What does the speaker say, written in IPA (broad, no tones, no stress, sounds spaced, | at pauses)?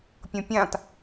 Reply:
pʲ õ pʲ ã t